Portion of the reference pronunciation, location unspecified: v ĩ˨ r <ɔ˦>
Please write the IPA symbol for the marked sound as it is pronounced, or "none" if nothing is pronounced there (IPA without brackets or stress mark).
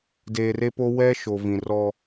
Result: ɔ˦